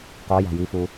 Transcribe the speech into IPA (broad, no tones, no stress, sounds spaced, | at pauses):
q ɔ j a̤ j i f u